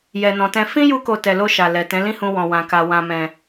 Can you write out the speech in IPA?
jɛ˨nɔ̃˨tɛ̃˧ fĩ˦ju˧ko˨ tɛ˨lo˧ ʃa˨ lɛ˨ tɛ̃˨˦lĩ˦hũ˧ wɔ̃˨ wã˨ka˨ wã˨mɛ̃˨

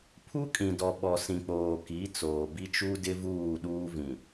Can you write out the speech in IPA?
pʰu˦kʼĩ˨dɔ˨ ɓɔ˨sĩ˨k͡poː˨ ki˨˦t͡soː˨bi˦t͡ʃu˦ dɪ˦vuː˦˨ɗuː˦ vĩ˨

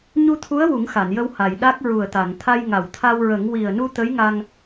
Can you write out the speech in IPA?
ɲu˧t̪ʰu˧˥ə̯ wu˨˩˦ŋxa˨˩˨njə˧w ha˨˩˨j ɗa˦˥k̚ ɹu˨˩ə̯t̪a˨˩˨ŋt̪ʰa˧j ŋa˨˩˨wt̪ʰa˧wɹə˨˩˦ŋ wi˨˩ə̯nu˧ t̪ə˧˥jŋa˧ŋ

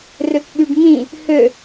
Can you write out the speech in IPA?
røkɓyɖŋĩ | hø

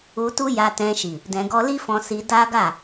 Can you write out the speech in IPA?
u˧tu˦ja˧ tɛ̃˧ʃi˨ | dɛ̃˧ɡɔ˦ li˦fɔ̃˧ si˧ da˦ ɡa˦˨

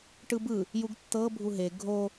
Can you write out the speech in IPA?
ʈɯbɯ | juɡtːɤ bʱuɦe ɡʱo

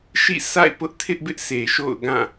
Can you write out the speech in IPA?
ʃḭ˦˨ sʰa̰˦˨ɪ̯pʊ˦ʔtʰɪ˦ʔbɪ˦ʔ sʰe˨ʃo̰˦˨ʊ̯ɡã˦˨

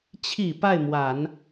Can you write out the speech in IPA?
t͡ɕʰi˨˩ pa˥˩ɪ̯mwa˨˩˦n

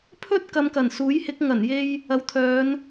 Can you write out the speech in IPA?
pʰɵ˥t̚kɐ˨˧mkɐ˨˩n suː˨˥jhɪ˨˥k̚ ŋɐ˨˩n je˧j | ɐ˨˥wt̪ʰœː˨˧n

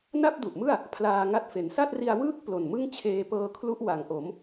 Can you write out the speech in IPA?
na˥˩p̚ du˨˩ʔmɯ˥˩a̯ | pʰlaː˧ŋa˦˥t̚fe˩˦n sa˥˩t̚ri˧a̯wɯː˥˩k̚ plo˨˩nmɯ˥˩ŋ t͡ɕʰeː˧pɤː˧kʰlu˦˥ʔ wa˩˦ŋʔo˩˦m

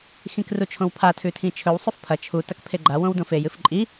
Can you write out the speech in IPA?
xĩkrut͡ʃʰõwpʰa tʰʉtʰĩt͡ʃʰɵw sˤɵfpʰɐ t͡ʃʰu tɐkpʰeɡ͡ǃa wõwdõfej ɨfǃʼi

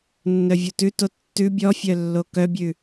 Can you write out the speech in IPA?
nːœvʲotʉto tːʉ bʲɔfʲœ lːokœbʲʉ

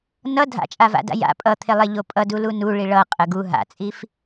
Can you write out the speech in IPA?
nʌ dʱa̰t͡ʃʼava̰da̰ ja̰ pʼʌt̪ʰelˠeʎo pʼʌdulu nuɭi ɭʌqʼə ɡu ɦa̰t͡sʼif

